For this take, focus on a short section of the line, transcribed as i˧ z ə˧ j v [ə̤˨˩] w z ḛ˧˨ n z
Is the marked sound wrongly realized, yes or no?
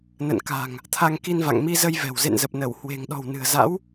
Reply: yes